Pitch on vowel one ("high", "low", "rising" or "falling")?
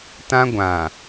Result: high